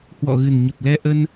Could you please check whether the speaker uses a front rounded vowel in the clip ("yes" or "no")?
no